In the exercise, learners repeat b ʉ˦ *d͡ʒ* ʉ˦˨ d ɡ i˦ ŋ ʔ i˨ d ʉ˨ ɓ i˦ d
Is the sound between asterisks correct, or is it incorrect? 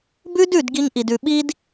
incorrect